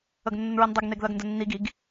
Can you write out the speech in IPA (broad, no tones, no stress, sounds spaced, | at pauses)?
ə ɡ nː ə n ɹ i n dˤ ə ɡ n e ɡ ð ɜ ɡ n d ə nː i ɡ i ɡ